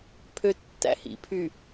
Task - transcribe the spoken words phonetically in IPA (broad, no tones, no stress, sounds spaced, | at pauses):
pʰ ø tː æ̰ h ḭ pʰ y